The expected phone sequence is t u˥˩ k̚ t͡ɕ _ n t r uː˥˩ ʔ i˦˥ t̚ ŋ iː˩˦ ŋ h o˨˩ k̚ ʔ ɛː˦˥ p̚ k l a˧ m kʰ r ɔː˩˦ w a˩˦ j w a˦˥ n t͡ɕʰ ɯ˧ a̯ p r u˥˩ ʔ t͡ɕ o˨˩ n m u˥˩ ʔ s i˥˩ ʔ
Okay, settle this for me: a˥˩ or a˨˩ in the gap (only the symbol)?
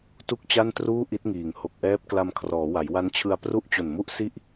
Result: a˥˩